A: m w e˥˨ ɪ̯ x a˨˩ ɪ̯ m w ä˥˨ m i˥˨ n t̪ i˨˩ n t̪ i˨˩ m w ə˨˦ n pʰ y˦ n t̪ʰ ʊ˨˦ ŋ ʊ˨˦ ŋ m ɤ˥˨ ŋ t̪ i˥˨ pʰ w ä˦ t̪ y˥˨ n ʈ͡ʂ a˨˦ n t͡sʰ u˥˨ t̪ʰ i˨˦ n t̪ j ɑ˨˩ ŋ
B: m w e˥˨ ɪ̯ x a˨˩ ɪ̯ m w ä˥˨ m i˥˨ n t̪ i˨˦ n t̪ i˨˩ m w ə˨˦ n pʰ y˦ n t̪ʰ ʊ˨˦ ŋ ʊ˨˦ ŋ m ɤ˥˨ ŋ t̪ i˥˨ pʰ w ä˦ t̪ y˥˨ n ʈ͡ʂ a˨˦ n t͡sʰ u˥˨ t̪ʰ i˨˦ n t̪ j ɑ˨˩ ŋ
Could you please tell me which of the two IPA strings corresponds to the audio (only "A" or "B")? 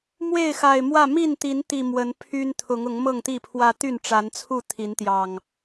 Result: B